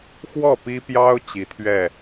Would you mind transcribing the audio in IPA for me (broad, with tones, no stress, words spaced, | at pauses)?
xwɔ˥˨pi˦pjɑ˦ʊ̯ t͡ɕi˨˦t̪ʰɥɛ˥˨